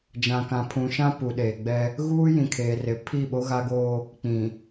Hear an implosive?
yes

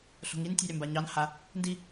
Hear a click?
no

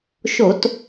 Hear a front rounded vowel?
no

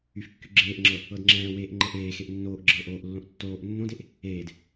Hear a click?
yes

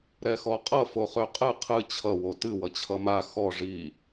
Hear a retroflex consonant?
yes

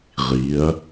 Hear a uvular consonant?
yes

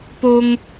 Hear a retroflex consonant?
no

